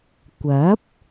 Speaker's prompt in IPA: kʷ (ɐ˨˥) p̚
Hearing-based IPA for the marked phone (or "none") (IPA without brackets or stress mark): ɐ˨˥